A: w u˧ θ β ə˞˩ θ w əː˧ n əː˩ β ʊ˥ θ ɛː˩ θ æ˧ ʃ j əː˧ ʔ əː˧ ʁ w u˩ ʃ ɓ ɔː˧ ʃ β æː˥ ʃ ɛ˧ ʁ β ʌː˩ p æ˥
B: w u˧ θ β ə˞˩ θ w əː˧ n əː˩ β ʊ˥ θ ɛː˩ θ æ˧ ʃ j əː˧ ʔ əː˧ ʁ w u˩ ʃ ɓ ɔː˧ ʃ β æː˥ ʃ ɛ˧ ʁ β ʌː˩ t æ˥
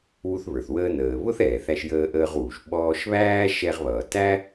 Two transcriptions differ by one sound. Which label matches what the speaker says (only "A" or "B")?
B